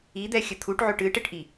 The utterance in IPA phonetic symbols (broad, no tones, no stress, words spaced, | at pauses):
id̪ɛxʲɘ t̪ʰuʈʕoʈ ɨʈɘʈʔi